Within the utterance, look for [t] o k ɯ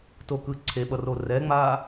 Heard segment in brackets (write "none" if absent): t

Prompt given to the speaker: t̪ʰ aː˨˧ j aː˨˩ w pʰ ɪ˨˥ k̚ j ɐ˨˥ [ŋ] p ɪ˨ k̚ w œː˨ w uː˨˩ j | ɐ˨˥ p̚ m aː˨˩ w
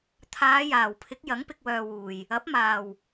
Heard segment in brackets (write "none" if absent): ŋ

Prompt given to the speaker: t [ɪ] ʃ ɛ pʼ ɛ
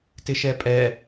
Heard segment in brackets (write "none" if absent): ɪ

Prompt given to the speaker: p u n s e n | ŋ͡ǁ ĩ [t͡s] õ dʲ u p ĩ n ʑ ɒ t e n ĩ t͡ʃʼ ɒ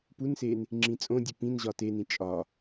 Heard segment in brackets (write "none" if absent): t͡sʼ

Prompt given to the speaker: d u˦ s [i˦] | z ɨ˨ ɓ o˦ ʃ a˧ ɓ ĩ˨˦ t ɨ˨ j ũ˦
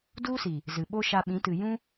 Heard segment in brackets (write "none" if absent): i˨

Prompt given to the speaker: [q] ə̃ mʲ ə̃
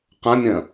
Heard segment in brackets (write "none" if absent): q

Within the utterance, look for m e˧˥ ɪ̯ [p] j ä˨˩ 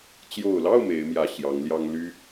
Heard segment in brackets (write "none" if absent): m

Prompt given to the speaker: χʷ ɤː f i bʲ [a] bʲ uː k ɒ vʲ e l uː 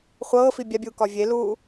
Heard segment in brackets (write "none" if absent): a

